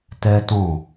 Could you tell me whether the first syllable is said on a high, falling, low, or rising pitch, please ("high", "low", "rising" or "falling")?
high